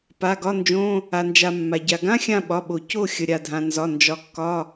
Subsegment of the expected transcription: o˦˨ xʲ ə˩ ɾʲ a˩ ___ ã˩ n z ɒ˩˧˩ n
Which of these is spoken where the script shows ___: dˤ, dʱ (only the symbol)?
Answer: dʱ